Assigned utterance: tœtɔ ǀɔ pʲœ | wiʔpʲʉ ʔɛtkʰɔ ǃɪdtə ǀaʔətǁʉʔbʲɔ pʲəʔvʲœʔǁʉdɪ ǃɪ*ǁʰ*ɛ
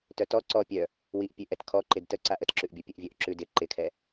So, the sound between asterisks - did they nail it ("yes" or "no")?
no